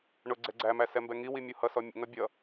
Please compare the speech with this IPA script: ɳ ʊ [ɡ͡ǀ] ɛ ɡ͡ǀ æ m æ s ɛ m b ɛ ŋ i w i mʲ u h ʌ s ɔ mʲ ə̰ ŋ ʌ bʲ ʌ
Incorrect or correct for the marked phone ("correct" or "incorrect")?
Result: correct